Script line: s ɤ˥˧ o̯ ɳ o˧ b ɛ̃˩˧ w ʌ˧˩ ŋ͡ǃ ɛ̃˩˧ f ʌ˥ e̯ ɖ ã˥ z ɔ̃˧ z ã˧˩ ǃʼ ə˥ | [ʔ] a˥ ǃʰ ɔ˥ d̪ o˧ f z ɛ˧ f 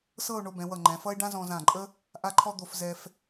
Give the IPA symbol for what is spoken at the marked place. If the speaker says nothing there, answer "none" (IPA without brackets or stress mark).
ʔ